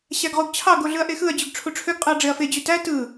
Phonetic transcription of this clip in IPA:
ɕæɡʁuɡt͡ɕʰɑ ɡoɮɯɐ̯ʔexɯɐ̯ d͡ʑyɡʈ͡ʂʰuʈ͡ʂʰøɡ qʼɯɐ̯ɖ͡ʐeɐ̯fe d͡ʑytæ tɯ

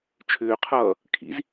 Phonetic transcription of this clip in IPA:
t͡ʃʰʏːqʰʌː | kʰḭz

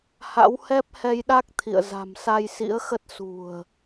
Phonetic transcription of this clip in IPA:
ha̰˧˥whɛ˦˥p̚hɛ˧jɗa˦˥k̚ t̪ʰḭ˧˨ə̯ za̤˨˩msa˧jsḭ˧˥ə̯xə˦˥t̚ sṳ˨˩ə̯

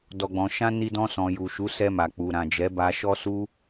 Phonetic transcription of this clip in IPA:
dɔ˨ɡ͡bɔ̃˨ʃã˧ ni˧dɔ̃˧sɔ̃˨ ju˨ʃu˨˦ sɛ˧ma˨ k͡pu˨ɾã˨d͡ʒɛ˨˦ ba˧ʃɔ˦su˦

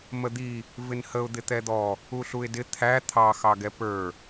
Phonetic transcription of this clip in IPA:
məd̪i | vɪnhəʊ̯ d̪ɪt̪ɛd̪ɔ | uɬuɪ̯dɪ t̪ʰæ t̪ʰɑ xɑɡɛpə˞

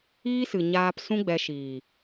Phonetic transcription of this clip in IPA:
iː˦sɨ˨ɲaː˧p sũ˦ɡ͡bɛ˧ʃiː˨

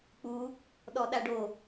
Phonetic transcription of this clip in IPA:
k͡pu | ɗɔɗaɖo

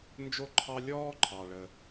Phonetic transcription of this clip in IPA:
nd͡ʒo˥ǃʰɑ˥ lʲɔː˥ǃʰɑ˩ ɭə˩

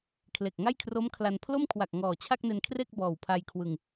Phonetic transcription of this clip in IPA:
kʰle˨˩k̚ŋa˥˩jkʰro˦˥mkʰla˧n pʰlo˥˩mkʰwa˨˩k̚ ŋɔː˨˩t͡ɕʰa˥˩k̚ne˧nkʰre˥˩k̚ bɔː˨˩wpʰa˧jkʰwɯ˧ŋ

